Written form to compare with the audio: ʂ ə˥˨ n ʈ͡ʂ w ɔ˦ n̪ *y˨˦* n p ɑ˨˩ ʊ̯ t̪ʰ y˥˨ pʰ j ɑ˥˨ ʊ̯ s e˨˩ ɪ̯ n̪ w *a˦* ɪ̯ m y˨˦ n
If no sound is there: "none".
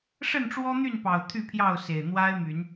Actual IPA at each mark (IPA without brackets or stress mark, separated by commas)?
y˥˨, a˦